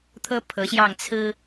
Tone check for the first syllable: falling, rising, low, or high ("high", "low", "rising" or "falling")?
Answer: high